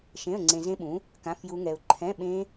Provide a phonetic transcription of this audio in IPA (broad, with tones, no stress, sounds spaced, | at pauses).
ʃ ẽ˧˥˧ ə̯ ŋ͡ǀ ẽ˧ z ẽ˦˥ ɓ ũ˨˥ | k ã˧˥˧ f j u˦˥ ŋ ɛ˧ ʊ̯ ǃʰ ɛ̃˧˥˧ ɓ ẽ˦˥